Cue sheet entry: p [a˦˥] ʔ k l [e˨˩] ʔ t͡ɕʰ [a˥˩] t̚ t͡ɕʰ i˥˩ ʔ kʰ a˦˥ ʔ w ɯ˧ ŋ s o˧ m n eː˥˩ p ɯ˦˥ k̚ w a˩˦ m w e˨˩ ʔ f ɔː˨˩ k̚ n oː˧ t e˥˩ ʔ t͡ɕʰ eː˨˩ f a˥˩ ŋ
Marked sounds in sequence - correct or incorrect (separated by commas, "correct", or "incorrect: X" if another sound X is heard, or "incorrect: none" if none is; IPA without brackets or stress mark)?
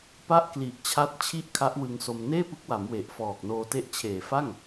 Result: incorrect: a˥˩, incorrect: i˨˩, incorrect: a˦˥